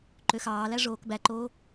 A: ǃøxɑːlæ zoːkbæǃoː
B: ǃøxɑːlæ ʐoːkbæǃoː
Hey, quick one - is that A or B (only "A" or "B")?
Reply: B